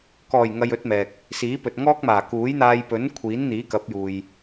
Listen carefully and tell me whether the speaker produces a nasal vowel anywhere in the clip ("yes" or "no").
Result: no